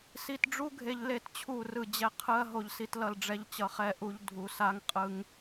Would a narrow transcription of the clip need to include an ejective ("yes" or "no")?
yes